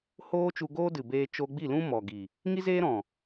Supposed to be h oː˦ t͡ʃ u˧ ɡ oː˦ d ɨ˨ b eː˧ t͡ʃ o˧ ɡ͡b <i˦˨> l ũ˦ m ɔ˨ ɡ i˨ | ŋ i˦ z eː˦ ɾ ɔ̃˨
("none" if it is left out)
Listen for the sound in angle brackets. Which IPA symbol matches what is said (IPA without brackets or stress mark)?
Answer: i˦˨